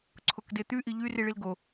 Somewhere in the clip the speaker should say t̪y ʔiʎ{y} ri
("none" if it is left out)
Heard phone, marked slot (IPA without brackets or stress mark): y